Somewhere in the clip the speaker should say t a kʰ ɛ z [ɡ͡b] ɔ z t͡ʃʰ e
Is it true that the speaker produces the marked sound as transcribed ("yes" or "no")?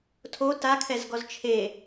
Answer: no